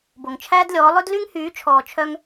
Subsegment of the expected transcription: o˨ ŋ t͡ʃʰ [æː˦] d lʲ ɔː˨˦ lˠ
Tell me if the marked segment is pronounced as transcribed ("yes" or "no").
yes